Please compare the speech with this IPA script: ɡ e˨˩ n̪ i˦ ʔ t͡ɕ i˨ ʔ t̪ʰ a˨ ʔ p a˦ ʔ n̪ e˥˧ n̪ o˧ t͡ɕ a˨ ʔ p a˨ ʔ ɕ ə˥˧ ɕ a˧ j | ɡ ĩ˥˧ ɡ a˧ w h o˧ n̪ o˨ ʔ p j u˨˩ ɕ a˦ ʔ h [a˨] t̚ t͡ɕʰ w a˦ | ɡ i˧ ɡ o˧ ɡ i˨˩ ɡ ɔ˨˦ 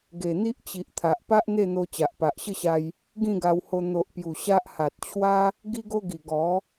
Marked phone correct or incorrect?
correct